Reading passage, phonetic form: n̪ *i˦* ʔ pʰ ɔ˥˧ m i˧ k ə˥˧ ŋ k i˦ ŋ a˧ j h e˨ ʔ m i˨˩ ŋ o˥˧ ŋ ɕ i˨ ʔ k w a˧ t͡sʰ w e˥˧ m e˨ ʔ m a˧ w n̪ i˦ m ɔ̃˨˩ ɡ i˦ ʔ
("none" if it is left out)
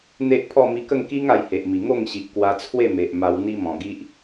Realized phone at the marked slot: e˦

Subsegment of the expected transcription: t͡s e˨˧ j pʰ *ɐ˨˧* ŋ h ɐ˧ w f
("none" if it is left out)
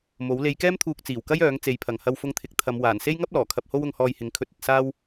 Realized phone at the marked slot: ɐ˨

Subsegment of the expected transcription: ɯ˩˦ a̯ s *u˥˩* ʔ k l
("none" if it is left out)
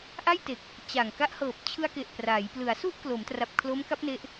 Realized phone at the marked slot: u˥˩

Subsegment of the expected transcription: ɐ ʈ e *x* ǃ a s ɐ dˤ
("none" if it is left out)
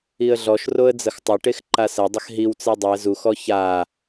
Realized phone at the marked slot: x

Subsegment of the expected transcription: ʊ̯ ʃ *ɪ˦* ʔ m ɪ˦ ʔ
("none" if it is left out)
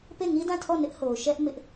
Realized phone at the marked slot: ɛ˦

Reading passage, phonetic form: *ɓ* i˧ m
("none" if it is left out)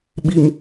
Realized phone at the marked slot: ɓ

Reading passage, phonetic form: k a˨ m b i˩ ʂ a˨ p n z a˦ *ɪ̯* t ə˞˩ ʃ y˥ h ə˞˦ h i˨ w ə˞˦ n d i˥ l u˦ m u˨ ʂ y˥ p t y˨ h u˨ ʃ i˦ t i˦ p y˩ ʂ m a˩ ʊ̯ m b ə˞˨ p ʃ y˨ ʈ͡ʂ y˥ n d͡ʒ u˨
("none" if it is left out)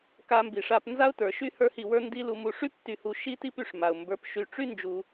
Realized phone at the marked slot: ʊ̯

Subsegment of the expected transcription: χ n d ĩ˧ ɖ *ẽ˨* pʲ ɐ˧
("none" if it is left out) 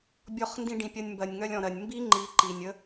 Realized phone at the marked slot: ĩ˨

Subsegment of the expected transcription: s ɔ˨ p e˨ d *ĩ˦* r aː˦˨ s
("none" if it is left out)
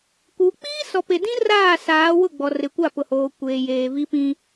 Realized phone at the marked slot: ĩ˦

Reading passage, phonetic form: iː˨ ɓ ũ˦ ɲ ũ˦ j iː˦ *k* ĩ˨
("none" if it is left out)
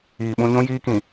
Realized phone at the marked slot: k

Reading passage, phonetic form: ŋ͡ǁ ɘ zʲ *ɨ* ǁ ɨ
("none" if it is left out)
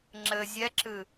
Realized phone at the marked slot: ɛ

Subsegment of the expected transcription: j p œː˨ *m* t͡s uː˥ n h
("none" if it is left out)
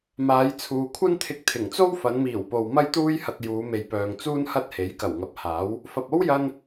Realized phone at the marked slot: ŋ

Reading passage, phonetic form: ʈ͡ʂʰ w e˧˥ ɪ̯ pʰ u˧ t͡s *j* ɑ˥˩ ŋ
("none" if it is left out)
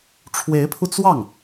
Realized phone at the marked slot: w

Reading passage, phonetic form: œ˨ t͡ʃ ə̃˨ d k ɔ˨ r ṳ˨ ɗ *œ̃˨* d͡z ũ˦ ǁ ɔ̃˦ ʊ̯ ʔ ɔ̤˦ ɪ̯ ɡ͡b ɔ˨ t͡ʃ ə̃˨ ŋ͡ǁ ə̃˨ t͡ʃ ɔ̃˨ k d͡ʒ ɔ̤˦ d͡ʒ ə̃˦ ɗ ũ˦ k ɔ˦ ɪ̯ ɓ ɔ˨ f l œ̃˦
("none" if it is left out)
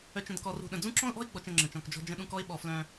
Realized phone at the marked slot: ə̃˨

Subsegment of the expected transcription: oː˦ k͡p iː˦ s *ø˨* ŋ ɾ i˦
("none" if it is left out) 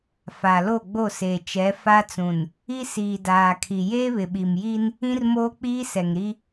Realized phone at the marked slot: ɛ˨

